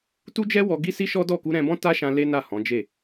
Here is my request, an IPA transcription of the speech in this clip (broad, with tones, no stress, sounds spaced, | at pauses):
t u˦ d͡ʒ ɛ˦ w ɔ˧ ɡ i˦ s i˦ ʃ ɔ˦ d ɔ˦˨ k u˧ ɾ ɛ̃˧ b ɔ̃˦ t a˦ ʃ ã˧ l e˦ n a˦˨ h ɔ̃˨˦ d͡ʒ e˦˨